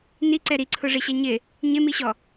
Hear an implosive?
no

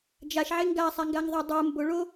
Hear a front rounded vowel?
no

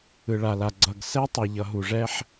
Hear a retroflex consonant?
yes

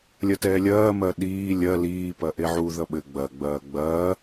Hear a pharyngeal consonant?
yes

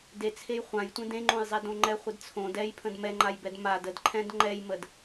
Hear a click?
yes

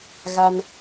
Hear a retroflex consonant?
no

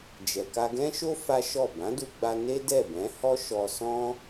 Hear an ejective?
no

